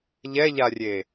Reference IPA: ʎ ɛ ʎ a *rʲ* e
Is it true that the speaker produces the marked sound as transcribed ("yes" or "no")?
yes